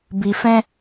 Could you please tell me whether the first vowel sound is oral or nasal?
oral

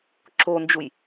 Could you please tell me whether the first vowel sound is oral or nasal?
oral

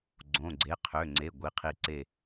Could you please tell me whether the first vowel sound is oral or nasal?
nasal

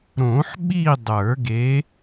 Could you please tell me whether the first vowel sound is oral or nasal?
nasal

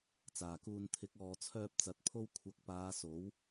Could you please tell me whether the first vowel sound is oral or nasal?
oral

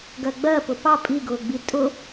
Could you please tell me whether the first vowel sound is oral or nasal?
oral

